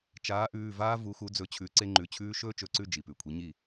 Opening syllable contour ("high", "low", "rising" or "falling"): rising